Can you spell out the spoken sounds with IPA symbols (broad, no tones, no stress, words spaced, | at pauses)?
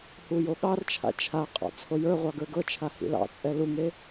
hujoɠɑrt͡ʃʰa̰ t͡ʃʰaqʼɑ̰ t͡sʰojə˞ʁʷɑ ɡə˞ɡɤt͡ʃʰa hḭlɑ̰t͡sʼɛ luŋe